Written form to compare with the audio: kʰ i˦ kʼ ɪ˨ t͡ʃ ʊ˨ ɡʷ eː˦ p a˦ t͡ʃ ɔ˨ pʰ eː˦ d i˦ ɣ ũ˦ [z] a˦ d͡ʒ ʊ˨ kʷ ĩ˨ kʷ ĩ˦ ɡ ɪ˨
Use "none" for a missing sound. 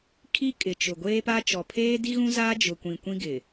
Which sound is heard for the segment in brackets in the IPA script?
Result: z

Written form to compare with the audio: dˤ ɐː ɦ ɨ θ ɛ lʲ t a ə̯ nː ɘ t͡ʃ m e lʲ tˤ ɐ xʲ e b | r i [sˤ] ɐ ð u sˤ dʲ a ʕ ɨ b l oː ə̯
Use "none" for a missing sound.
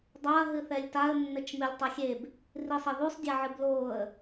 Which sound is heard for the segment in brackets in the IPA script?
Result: sˤ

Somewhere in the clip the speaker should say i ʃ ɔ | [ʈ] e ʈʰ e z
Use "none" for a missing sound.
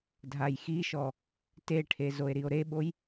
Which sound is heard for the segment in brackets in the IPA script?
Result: t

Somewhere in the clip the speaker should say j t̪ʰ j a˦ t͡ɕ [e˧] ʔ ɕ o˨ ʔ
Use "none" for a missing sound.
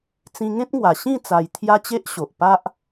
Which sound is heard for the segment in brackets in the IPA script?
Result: e˦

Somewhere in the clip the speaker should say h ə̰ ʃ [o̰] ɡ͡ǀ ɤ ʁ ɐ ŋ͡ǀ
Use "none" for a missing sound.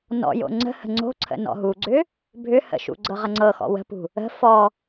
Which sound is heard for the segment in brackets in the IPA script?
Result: ṵ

